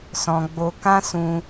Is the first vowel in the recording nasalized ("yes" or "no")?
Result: yes